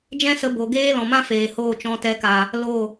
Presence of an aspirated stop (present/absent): absent